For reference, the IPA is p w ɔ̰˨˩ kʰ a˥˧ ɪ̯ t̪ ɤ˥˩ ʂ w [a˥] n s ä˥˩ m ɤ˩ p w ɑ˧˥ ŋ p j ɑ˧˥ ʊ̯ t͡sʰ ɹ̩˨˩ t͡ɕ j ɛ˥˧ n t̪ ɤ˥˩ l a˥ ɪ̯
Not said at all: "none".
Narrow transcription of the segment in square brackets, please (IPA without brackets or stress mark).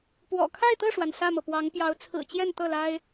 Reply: a˩